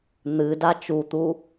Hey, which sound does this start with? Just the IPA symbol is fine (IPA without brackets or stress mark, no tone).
n̪